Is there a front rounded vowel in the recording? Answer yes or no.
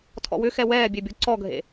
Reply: yes